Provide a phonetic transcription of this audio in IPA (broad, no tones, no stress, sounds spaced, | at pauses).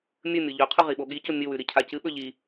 mʲ ɵ mʲ o ʎ ɵ qʰ ʉ ʁ i ɓ o ɠ i c o mʲ ɨ w ʉ ɾ i cʰ a c ɨ ɓ ɵ ʎ i